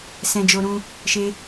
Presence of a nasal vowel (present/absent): present